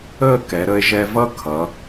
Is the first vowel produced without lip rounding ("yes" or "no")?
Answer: yes